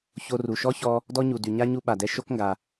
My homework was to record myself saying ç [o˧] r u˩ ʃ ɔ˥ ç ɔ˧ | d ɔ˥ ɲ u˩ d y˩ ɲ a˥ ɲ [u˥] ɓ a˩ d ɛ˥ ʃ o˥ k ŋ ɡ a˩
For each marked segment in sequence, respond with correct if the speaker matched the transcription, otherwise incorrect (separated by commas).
correct, correct